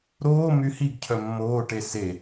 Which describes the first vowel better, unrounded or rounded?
rounded